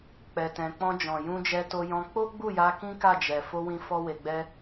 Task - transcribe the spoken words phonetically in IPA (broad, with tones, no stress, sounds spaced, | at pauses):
k͡p ɛ˨ t ɛ̃˨ k͡p ɔ̃˧ d͡ʒ ɔ̃˨ j ũ˧ d͡ʒ ɛ˧ t o˧ j ɔ̃˧ k͡p o˦ ɡ͡b u˦˨ j a˧ k ĩ˦ k a˦˨ d͡ʒ ɛ˨ f o˧ w ĩ˧ f ɔ˦ w e˧ ɡ͡b ɛ˦